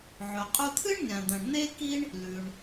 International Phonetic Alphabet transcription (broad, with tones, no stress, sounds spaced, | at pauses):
ʕ ɵ˩ qʼ u˧ t̪ʰ ɨ˥ ɳ nʲ ã˩ d̪ ɐ̃˩ ɳ n̪ e˥ k i˥ ɳ | l ʉ˩ ɳ